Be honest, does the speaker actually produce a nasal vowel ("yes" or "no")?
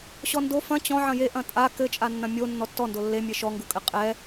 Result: yes